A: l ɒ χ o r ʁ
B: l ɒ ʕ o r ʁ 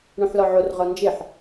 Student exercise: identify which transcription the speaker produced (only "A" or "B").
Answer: B